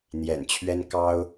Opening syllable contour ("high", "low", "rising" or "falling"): low